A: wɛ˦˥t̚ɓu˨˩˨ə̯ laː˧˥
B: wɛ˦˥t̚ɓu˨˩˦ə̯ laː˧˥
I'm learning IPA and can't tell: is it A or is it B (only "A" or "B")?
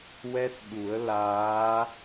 B